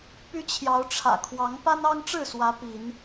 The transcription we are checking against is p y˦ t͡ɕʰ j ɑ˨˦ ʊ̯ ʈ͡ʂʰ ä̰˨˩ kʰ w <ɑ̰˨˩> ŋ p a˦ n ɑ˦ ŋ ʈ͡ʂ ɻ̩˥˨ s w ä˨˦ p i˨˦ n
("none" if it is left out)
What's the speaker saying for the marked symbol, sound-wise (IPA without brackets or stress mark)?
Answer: ɑ˨˦